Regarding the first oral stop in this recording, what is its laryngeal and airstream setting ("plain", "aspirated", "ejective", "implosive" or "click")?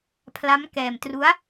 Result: aspirated